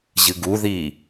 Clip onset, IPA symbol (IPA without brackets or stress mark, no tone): ʑ